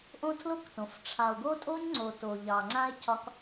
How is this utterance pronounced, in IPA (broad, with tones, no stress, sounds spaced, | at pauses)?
ʔ õ˦ tʰ l o˦ k t õ˨ f ʈ͡ʂʰ a˨ o̯ ɡ o˦ tʼ o˦ ɲ ŋ͡ǀ o˨ t o˨ ʎ ɑ˨ ŋ͡ǀ ã˦ e̯ cʰ ɒ˦ k